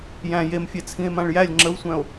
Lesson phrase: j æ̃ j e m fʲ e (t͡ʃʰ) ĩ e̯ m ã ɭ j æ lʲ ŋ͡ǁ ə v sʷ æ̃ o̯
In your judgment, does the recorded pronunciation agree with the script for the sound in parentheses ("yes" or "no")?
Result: no